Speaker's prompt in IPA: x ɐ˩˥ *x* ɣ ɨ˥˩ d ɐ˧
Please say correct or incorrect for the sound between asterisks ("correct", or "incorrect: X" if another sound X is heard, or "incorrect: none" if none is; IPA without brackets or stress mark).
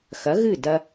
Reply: incorrect: none